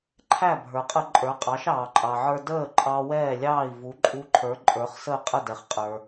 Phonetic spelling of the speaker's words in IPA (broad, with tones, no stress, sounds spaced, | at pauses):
ǃʰ æ˥˩ bʱ ə˞˩ qʼ ə˧ ǃʼ ə˞˩˥ qʼ ɑ˩˥ ʃ ɑː˩ ǃʼ ɑ˩ ʕ ə˞˧ d əː˥˩ ǃʼ ɑ˧ w ɛː˥˩ lʲ ɑː˥˩ i̯ v u˩˥ ǃʼ u˧ ǃʰ ə˞˩˥ ǃʼ ə˞˩˥ χ s əː˥˩ qʼ ə˥˩ d ɛ˩ χ qʼ ə˞˩